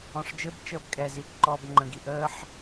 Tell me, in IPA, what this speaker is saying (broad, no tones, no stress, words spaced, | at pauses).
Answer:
ɔ̃ʂd͡ʒɘbt͡ʃəːb kʼɛziʔ ǃɔːbŋ͡ǃə̃ɡi ʔəːħ